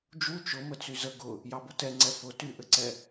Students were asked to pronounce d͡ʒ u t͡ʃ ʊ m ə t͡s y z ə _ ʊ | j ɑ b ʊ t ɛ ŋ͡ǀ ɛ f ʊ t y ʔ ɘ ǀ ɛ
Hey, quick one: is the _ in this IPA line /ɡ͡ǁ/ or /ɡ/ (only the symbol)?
ɡ